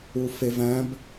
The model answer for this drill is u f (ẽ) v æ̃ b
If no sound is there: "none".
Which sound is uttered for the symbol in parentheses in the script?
e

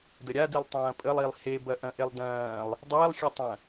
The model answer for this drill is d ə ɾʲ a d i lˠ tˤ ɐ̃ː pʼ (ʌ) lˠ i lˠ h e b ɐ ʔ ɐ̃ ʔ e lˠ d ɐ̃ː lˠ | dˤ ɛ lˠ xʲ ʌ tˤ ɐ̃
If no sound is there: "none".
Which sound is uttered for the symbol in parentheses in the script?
ə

